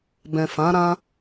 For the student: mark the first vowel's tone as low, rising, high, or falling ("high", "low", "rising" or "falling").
low